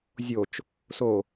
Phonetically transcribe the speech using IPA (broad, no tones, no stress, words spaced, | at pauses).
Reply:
zʲot͡ʃ | so